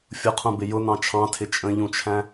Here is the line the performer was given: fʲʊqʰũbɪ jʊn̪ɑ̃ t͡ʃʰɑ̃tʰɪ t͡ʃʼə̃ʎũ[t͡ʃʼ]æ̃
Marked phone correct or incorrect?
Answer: incorrect